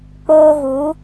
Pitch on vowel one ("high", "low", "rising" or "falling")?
high